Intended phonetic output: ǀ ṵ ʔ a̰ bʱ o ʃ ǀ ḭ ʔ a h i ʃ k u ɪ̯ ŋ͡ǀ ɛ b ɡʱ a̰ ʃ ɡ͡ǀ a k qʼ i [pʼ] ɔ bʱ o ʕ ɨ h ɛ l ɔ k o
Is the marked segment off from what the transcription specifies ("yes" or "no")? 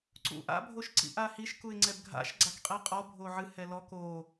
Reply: yes